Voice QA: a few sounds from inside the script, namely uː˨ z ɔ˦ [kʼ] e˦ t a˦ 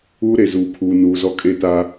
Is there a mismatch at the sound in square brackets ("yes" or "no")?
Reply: no